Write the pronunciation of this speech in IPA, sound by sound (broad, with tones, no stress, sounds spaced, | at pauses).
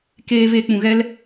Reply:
k eː˧ v e˧ k͡p ũ˨ ɣ ɛ˦ l